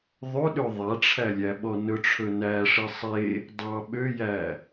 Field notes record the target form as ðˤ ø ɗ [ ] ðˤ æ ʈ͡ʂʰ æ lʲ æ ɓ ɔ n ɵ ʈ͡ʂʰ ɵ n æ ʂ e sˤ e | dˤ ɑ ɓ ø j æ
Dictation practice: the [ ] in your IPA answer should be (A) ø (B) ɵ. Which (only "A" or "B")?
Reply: A